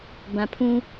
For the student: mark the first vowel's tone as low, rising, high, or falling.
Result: low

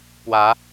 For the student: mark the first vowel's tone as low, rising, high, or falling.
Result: rising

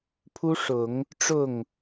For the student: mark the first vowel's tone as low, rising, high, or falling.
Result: high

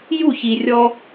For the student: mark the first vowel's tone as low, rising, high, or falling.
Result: falling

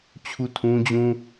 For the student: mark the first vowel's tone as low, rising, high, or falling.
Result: falling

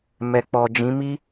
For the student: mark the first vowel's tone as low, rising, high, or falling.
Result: low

